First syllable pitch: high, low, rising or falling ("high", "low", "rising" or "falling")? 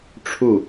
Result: falling